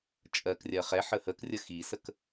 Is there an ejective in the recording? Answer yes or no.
yes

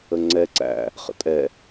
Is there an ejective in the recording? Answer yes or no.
yes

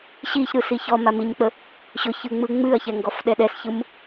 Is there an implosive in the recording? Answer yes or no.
yes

